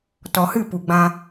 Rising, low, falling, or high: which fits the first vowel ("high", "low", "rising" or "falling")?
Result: low